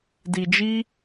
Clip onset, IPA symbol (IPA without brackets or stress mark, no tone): d